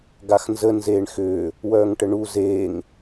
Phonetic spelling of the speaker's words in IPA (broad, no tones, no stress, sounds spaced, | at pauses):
ɡ a x n z ə n z eː ɳ x ʏː | w œː ŋ ʈ ə ɳ u z eː ŋ